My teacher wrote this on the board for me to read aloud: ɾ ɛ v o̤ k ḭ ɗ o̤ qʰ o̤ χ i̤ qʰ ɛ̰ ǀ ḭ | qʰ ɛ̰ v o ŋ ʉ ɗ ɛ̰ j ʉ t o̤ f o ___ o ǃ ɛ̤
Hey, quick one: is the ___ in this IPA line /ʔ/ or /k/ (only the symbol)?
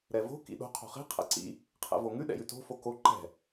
k